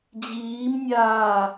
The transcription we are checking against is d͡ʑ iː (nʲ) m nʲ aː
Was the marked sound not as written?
yes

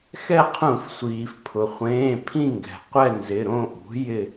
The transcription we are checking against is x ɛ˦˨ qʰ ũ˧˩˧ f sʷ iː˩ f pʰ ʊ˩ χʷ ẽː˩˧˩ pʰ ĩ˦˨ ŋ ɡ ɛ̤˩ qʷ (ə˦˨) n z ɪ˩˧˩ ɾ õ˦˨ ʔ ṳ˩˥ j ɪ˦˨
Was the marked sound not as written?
yes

